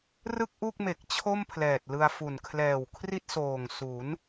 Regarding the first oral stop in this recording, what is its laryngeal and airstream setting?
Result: plain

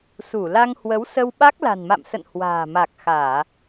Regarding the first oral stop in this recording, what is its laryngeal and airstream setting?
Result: implosive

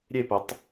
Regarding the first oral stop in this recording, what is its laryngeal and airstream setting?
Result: plain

